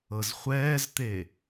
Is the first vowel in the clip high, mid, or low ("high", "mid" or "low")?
mid